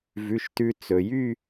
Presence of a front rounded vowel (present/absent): present